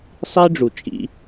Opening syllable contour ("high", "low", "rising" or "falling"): high